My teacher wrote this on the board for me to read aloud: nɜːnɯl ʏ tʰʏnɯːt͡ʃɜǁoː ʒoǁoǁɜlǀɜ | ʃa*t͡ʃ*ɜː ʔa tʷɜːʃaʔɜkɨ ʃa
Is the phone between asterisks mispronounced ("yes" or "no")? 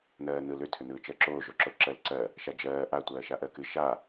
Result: yes